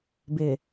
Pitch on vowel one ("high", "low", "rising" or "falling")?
low